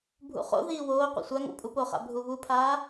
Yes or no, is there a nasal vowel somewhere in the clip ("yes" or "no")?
no